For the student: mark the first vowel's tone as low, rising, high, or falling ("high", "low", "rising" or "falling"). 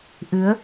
rising